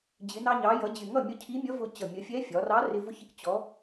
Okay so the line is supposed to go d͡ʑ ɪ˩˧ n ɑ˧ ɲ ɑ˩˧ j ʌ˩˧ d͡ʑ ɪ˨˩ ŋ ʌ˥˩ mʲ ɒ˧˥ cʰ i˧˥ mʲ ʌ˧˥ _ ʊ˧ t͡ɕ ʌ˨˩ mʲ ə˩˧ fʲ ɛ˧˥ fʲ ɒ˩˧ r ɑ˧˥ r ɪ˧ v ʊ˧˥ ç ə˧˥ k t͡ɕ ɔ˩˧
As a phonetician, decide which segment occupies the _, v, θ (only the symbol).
v